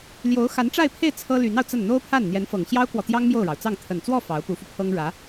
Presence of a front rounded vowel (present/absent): present